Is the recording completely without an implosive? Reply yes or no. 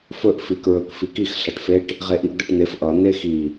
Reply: yes